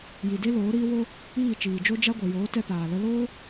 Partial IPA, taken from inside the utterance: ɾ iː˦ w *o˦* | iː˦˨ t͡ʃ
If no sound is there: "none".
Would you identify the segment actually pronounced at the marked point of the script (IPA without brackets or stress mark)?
o˦